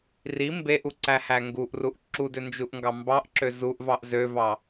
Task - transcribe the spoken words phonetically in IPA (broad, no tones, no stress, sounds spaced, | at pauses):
r i m b e ʔ u ǀ æ h æ ŋ ɡ u ʔ r u ʔ ǁ u d ø n d͡ʒ u ʔ ŋ ɡ ɑ m b ɑ ʔ ǁ ø z u ʔ v ɑ ʔ z ø v ɑ